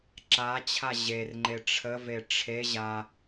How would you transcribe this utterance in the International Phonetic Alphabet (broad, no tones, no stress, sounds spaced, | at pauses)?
ǁ a t͡ɕʰ a ʑ e r ŋ͡ǃ e ʈ͡ʂʰ ə v e ʈ͡ʂʰ e ʑ a